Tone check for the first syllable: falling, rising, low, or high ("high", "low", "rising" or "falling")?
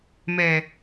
low